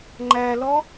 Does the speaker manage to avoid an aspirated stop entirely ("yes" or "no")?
yes